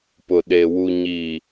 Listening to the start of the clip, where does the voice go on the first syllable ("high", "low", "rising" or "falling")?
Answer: low